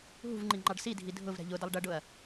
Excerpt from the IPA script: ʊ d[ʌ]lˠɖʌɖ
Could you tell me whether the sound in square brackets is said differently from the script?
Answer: no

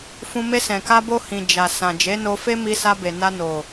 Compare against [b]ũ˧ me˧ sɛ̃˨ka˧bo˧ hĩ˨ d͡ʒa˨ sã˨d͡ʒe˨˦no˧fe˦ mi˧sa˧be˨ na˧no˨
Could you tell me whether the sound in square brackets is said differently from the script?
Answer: yes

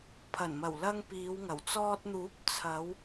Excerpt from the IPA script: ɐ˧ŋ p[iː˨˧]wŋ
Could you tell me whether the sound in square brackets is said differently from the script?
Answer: no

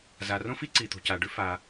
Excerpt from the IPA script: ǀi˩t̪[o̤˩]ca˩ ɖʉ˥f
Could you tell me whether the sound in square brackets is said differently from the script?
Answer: no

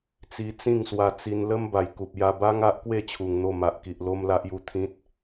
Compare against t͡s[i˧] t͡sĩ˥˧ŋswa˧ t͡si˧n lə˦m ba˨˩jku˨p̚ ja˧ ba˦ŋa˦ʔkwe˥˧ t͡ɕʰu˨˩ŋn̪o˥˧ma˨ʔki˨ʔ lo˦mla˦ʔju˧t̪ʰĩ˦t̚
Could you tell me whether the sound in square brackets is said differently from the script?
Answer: no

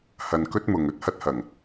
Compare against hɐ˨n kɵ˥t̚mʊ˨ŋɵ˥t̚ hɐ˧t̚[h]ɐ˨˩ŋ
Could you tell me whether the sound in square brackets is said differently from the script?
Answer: no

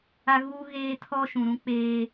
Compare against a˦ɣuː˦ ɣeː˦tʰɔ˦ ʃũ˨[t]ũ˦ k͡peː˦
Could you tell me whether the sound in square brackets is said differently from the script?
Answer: yes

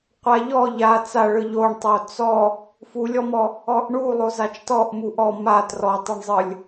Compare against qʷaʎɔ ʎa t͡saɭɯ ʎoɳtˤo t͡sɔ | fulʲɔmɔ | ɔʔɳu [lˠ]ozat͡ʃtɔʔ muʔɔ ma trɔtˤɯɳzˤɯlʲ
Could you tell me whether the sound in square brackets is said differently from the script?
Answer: no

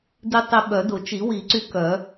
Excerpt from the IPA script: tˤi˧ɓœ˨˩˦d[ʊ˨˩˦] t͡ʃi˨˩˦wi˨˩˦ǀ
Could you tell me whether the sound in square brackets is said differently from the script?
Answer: no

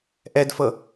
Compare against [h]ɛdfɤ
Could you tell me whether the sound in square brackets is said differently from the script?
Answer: yes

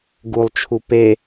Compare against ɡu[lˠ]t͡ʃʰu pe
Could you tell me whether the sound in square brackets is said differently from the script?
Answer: no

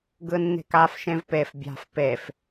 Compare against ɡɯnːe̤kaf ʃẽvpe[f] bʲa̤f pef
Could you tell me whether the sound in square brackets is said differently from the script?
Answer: no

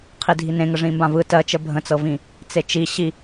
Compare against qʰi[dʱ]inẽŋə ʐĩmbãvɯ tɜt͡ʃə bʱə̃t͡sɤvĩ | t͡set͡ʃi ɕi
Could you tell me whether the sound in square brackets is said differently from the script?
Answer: no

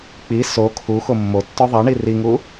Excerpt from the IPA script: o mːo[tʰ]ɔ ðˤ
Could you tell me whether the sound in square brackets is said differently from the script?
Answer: yes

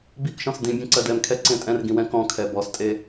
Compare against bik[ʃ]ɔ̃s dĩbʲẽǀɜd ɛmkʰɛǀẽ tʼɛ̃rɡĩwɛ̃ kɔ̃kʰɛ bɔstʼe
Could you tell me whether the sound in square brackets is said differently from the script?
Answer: no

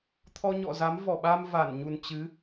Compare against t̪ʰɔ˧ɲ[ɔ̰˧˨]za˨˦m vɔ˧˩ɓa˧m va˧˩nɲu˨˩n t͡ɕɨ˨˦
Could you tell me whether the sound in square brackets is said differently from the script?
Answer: no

